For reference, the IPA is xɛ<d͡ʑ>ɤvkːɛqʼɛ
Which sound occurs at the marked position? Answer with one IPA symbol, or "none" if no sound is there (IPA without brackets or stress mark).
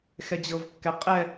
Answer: d͡ʑ